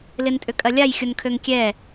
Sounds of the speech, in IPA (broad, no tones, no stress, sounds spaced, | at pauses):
l ɪ n tʼ ʏ kʼ ɐ lʲ a j xʲ ʊ n kʰ ø ŋ kʲ ɛ